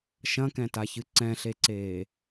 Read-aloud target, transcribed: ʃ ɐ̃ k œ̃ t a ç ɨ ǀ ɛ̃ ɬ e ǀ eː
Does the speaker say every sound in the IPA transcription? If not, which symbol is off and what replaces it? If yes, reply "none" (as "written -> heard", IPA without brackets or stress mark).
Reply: œ̃ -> ɛ̃